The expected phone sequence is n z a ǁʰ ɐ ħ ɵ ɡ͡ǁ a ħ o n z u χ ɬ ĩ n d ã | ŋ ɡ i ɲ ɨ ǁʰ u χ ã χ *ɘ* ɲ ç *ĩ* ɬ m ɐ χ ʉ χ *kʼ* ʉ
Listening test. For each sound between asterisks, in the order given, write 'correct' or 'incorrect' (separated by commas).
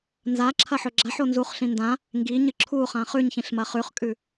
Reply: incorrect, correct, correct